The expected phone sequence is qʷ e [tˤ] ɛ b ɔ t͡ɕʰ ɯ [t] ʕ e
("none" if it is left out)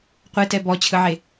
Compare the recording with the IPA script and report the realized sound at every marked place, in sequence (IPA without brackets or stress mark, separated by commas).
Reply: t, none